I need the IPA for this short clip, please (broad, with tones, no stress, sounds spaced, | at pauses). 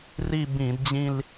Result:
r i˥˧ b ĩ˧˩˧ d d͡ʑ ĩ˥˧ l